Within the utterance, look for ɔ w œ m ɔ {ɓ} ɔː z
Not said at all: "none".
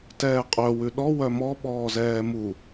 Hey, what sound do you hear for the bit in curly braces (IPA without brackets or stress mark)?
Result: ɓ